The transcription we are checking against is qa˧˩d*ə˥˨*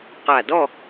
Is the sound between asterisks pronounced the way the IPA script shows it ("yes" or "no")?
no